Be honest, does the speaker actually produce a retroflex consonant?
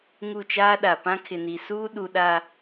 no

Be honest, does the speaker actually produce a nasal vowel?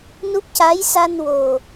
no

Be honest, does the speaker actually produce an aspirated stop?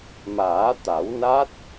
no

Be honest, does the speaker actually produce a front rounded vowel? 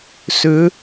yes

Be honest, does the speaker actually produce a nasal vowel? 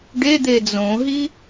yes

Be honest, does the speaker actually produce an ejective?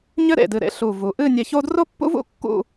no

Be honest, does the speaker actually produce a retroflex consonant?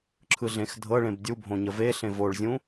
yes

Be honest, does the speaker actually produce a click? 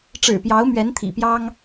no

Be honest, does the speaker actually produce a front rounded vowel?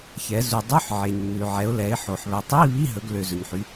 yes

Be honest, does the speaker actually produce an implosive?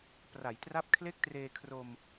no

